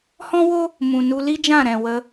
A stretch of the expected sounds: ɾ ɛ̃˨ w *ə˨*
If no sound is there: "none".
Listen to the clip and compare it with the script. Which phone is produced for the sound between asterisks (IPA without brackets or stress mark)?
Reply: ə˧